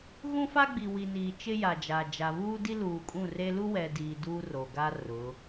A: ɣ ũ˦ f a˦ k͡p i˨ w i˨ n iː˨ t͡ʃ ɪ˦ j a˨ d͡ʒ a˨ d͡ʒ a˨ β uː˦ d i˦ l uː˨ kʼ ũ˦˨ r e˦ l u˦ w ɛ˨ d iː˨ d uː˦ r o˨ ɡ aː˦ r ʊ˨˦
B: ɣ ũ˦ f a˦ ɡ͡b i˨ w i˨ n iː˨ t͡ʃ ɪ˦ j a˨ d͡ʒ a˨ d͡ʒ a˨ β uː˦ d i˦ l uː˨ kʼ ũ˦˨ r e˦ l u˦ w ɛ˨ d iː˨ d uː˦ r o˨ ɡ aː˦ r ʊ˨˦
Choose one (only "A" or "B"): B